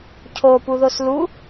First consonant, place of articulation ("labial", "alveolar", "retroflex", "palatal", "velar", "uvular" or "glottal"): palatal